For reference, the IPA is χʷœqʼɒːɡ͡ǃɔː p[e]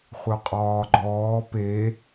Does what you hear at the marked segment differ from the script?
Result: no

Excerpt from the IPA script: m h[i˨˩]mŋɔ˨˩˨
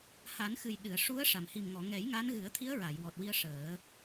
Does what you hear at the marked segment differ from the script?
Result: no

